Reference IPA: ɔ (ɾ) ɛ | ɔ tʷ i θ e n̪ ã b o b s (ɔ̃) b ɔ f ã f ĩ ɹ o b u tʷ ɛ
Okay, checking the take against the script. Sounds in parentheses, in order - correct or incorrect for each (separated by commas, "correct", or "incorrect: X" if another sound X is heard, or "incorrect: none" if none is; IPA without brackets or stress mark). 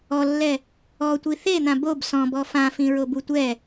incorrect: lː, correct